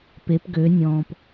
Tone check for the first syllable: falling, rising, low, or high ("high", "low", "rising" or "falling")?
rising